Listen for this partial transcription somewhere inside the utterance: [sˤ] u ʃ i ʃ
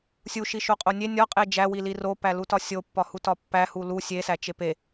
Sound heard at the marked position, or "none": sʲ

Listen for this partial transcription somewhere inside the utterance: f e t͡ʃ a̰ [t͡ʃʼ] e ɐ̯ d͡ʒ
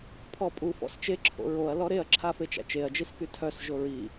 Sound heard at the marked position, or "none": t͡ʃ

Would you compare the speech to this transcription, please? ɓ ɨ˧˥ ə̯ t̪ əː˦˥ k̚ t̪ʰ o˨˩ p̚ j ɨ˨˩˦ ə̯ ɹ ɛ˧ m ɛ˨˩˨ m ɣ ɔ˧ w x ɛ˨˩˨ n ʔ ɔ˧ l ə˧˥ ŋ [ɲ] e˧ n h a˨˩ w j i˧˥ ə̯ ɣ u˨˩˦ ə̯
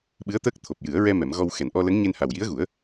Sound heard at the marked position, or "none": ɲ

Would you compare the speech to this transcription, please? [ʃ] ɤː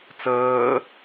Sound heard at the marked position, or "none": t͡s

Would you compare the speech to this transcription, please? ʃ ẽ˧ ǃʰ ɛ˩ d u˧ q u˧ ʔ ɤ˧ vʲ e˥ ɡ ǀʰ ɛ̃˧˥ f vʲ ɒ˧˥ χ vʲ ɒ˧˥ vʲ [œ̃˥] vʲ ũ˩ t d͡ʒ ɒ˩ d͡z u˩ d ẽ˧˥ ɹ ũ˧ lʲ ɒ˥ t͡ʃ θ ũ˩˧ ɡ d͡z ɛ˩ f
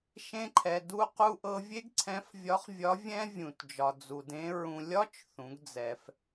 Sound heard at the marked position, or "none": ɛ̃˥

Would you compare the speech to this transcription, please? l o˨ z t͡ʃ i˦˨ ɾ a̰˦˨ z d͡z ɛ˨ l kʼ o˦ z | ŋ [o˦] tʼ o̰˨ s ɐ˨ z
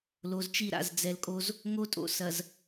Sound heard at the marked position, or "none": o˦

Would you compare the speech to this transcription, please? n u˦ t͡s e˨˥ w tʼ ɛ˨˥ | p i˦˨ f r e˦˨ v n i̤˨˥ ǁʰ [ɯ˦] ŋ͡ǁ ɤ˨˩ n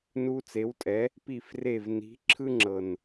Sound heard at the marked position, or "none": ɯ˦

